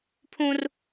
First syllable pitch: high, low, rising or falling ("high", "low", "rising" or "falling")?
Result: high